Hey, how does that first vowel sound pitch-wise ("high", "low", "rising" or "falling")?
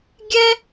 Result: high